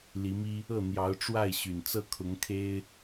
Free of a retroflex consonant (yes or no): no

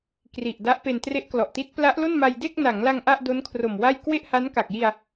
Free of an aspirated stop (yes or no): no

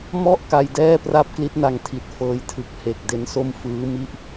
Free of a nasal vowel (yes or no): yes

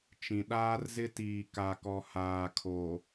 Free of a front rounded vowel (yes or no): yes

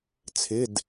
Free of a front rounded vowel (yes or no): yes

